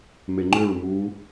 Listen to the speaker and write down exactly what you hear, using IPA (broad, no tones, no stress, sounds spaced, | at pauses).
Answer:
m e ŋ͡ǃ ʏ ɹ m uː